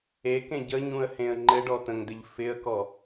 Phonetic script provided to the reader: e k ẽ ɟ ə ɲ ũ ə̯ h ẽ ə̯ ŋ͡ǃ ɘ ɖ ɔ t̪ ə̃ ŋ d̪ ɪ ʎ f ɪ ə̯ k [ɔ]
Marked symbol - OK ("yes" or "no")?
yes